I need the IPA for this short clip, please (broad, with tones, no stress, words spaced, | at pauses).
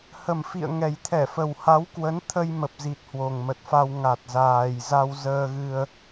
hə˨˩mfḭ˧˨ə̯ŋɛ˨˩j t̪ʰɛ˧˩fə˨˩wha˨˦wkwə˨˦n t̪ʰə˧jmə˨˩p̚zi˨˩t̚ hwo˨˩ŋmə˨˩t̚fa˧w ŋa˨˩t̚zaː˨˩jza˧w zəː˧ɣɨ˧ə̯